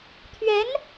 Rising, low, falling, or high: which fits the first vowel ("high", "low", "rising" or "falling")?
rising